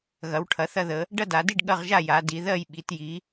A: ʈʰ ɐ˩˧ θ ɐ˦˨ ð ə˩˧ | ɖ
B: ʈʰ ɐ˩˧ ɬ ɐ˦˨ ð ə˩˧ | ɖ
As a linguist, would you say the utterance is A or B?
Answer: A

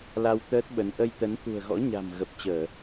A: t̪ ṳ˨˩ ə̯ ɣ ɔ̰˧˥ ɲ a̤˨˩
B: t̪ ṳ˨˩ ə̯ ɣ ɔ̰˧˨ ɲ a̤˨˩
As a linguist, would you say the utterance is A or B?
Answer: A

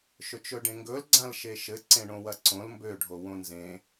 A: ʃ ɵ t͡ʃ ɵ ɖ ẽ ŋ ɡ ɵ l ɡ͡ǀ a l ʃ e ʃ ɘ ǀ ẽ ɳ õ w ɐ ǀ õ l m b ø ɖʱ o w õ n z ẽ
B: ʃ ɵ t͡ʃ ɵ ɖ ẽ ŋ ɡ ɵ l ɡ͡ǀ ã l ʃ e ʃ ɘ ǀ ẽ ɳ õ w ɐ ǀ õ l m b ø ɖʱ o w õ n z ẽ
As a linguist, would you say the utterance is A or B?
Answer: B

